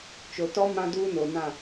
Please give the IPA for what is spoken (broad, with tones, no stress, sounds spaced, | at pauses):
t͡ʃ o˨ t ɔ˦ m ã˦ d uː˦ n o˨ n ã˦˨